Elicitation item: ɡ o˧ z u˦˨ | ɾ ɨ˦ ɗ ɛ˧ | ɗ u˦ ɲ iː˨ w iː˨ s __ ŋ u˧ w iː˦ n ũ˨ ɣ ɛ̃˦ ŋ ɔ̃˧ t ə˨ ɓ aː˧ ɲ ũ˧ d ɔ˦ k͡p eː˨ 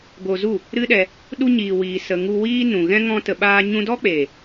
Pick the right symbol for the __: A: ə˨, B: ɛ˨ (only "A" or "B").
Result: A